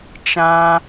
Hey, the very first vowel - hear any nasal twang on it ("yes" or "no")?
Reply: yes